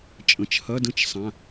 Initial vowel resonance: nasal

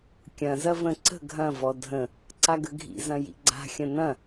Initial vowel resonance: nasal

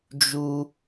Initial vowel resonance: oral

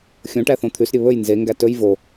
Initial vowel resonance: nasal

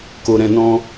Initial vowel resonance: oral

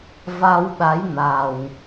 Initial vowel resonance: oral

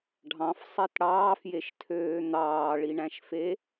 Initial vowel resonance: nasal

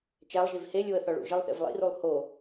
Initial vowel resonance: oral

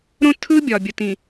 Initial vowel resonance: nasal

